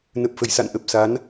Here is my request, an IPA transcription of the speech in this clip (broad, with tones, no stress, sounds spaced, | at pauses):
n ə˨˩ p̚ f ə˧˩ j s a̰˧˨ n ʔ ə˨˩ p̚ s a˨˦ n